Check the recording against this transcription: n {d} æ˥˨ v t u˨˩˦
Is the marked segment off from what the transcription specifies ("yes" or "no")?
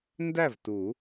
no